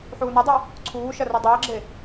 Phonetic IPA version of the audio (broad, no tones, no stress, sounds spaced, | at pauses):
ħ uː n ɐ dˤ ɘ | ǀʰ uː ʃ ɐ r ɐ dˤ ɘː ɡ͡ǁ e